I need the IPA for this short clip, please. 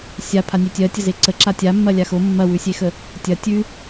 sʲa pʰanʲetʲɜtʲə zeǀəǁa tʲa mːɐlʲaxo mːɐwʉsʲexə | tʲɐ tʲʉ

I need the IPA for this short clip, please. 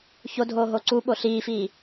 ço dʱoːɦoǀuɓo ɬiːfiː

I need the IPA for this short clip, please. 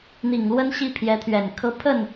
n̪i˨˩ŋlwə˥nɕi˥˩ pʰjɛ˧˥t̪ʰɥɛ˨˩nkʰɤ˥ pʰə˥˩n

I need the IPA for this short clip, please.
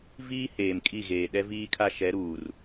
viː˦ heː˨mkʼi˦˨ɣeː˨ ɗɛ˦viː˦kʰa˦ʃɛ˨˦ ɾuː˨r

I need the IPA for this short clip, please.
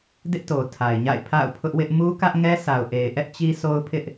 dɪ˦ʔto˨tʰa˨ɪ̯ɲa̰˦˨ɪ̯ pʰa̰˦˨ʊ̯pʰʊ˦ʔwɪ˦ʔ mu˦kä˦ʔŋɛ˦ sa˨ʊ̯ʔe˨ɪ̯ʔɛ˦ʔ t͡ɕi˦so˦ʊ̯pʰɪ˦ʔ

